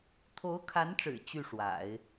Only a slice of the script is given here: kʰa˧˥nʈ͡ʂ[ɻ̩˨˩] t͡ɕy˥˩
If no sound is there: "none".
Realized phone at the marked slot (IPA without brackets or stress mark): ɻ̩˨˩